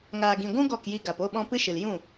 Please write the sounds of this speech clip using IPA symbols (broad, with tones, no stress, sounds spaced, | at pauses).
ŋ aː˨ ɡ ĩ˨ ɡʷ ũ˦ ɡ ɔ˦˨ k j i˧ ɡ a˨ p o˦˨ ɓ ɔ̃˧ p ɨ˦ ʃ ɨ˨ l j ũ˦˨